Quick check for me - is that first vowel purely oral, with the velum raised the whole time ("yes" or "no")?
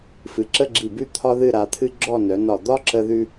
yes